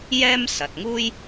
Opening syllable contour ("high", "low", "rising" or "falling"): high